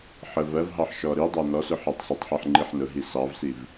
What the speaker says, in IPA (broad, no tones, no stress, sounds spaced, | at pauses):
ħ ə v ɜ v ɦ ɑ ħ ʃ ɔ ɾ i dˤ æ n ɔ s ʊ ħ ɛ tˤ s ə tˤ ħ ɜ ħ ŋ͡ǃ i ħ n ʊ ɦ i s ɑ v s i v